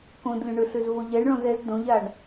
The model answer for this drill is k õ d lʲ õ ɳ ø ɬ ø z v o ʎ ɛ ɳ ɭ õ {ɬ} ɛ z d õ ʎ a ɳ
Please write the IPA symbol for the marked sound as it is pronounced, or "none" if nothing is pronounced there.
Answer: z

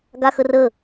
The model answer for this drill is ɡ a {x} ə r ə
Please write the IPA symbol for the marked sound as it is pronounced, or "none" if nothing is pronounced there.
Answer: x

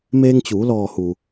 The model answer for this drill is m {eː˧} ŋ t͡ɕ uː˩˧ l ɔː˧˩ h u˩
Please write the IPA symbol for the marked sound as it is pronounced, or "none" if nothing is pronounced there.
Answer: eː˧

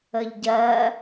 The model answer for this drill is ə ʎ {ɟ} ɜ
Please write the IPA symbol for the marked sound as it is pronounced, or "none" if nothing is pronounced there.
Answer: ɟ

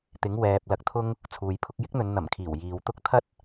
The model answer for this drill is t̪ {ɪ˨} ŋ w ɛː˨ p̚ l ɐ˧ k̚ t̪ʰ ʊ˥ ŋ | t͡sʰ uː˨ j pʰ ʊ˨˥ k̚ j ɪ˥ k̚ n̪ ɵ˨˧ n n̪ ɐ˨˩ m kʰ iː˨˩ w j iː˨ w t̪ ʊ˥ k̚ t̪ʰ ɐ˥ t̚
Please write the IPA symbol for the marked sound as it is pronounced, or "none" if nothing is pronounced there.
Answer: ɪ˨˥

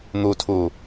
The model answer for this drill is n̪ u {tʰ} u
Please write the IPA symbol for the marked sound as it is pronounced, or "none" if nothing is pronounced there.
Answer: tʰ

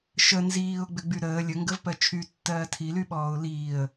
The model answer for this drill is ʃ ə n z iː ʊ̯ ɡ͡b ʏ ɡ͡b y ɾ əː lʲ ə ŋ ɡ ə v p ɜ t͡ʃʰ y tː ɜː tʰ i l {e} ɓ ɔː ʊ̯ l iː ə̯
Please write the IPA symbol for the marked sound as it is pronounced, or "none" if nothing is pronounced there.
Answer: y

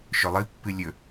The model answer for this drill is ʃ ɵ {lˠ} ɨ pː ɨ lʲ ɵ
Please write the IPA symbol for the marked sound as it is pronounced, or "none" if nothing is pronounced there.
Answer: lˠ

